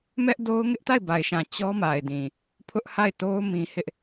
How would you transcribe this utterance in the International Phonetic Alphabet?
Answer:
m ɛ˦ ʔ d o˦ ʊ̯ ŋ ɪ˦ ʔ t a˦˨ ɪ̯ b a˨ ɪ̯ ʃ ã˨ t͡ɕ ɔ˦ m a˨ ɪ̯ d ĩ˨ | pʰ ʊ˦ ʔ h a˦˨ ɪ̯ t o˦ ʊ̯ m ĩ˦ h ɪ˦ ʔ

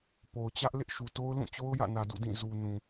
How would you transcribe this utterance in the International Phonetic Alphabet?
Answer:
p o˨ ʊ̯ t͡ɕ ä˦ ʔ l ɪ˦ ʔ ʃ u˨ t o˦ ʊ̯ l ũ˦˨ t͡ɕ o˦ ʊ̯ j ä̰˦˨ n ä˨ d ṵ˦˨ d ĩ˦˨ z u˨ n ũ˨

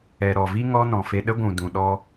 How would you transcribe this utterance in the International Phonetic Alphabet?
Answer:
ɛ˨ ɾ ɔ˨ v i˦ ŋ ɔ˦ n ɔ̃˨ f e˧ ɗ ə˦ ɡʷ ũ˨ d ũ˨ ɗ ɔ˧

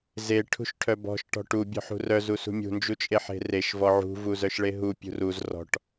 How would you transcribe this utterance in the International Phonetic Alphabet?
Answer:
z e ʈʰ ṳ ʃ ʈʰ œ b ɔ̤ ʃ ʈ ɔ̤ ʈ u bʲ ɔ̤ ħ ṳ r œ z u s ṳ mʲ ṳ n d͡ʒ u t͡ʃʼ e ħ e̤ r e ʃ v ɔ ʕ ṳ v u z œ ʃ ɭ e ɦ u pʲ ṳ r u z r ɔ̤ ʈ

